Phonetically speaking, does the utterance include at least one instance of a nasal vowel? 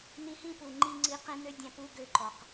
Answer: yes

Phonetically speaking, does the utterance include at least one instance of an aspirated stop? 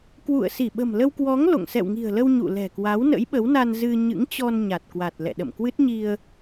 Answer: no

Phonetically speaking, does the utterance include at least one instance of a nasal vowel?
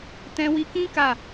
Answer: yes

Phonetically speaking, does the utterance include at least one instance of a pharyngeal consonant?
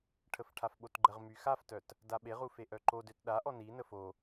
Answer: no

